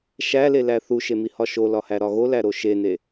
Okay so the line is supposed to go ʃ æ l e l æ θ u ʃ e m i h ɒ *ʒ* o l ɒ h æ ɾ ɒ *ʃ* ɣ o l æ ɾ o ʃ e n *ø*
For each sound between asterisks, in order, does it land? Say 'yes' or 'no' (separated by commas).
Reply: no, no, no